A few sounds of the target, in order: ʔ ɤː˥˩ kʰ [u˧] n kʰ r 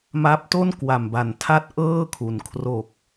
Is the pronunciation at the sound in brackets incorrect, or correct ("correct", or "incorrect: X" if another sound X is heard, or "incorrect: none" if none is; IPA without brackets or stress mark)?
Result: incorrect: u˩˦